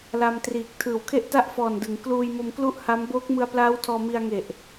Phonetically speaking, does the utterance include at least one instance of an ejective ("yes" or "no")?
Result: no